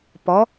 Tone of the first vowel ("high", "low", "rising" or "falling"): rising